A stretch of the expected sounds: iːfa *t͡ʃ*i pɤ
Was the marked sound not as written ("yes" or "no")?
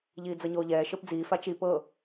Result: no